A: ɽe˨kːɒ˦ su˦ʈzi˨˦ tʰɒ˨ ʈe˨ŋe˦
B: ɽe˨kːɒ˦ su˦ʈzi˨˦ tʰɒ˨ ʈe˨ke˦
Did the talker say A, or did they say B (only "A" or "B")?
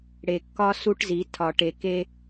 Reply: B